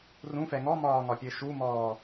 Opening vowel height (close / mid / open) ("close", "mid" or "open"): close